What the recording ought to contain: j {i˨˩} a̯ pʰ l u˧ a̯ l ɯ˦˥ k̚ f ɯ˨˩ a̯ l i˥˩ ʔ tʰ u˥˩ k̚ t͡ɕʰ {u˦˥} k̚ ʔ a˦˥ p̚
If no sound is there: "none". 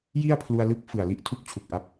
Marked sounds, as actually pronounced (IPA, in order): i˥˩, u˨˩

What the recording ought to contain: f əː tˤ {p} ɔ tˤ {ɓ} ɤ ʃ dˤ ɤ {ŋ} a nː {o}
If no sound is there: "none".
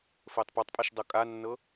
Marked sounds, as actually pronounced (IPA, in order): p, pʼ, kʼ, ɤ

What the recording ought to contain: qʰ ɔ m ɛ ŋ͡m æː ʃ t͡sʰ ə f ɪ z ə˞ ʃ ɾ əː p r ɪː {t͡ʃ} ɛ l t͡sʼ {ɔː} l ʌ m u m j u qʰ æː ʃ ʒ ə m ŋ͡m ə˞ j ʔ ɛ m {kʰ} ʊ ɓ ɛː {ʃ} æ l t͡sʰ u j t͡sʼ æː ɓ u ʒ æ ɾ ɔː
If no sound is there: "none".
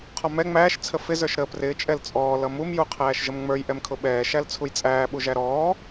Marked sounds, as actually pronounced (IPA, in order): t͡ʃʼ, ɔː, kʰ, ʃ

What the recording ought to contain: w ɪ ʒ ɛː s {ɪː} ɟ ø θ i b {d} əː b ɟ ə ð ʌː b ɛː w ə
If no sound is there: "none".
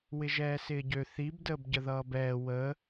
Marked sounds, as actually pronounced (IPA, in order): ɪː, d

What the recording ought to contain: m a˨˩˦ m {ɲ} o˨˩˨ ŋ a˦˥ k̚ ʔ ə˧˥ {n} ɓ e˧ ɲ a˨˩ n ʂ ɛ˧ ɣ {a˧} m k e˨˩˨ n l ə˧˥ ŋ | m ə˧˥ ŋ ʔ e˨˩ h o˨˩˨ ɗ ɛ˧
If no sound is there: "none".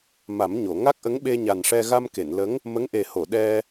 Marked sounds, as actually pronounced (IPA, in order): ɲ, ŋ, a˧

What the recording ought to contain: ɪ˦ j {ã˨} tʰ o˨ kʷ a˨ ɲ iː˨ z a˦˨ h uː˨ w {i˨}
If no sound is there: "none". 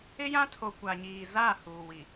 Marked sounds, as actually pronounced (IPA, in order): ã˦, i˨

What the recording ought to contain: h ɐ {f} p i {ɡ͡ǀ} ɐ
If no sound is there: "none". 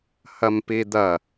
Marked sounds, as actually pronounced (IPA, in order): m, d̪

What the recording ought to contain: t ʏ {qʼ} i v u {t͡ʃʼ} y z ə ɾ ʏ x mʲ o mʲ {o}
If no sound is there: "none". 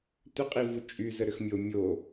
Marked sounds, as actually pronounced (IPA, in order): qʼ, t͡ʃʼ, o

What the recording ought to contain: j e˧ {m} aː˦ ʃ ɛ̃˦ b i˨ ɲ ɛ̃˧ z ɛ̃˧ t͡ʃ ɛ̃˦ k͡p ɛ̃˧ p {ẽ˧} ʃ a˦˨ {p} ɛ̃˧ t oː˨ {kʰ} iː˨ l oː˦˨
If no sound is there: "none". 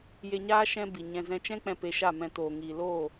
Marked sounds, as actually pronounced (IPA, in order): ɲ, e˧, m, ŋ

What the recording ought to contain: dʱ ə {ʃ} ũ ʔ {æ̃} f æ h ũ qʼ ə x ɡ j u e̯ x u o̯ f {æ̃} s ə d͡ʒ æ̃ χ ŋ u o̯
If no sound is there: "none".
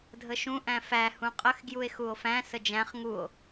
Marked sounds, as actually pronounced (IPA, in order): ʃ, æ̃, æ̃

